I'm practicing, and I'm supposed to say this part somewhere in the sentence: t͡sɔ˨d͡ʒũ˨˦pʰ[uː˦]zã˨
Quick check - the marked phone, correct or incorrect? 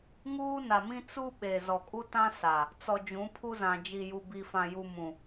incorrect